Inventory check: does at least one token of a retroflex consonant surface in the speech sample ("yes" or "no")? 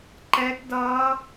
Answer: no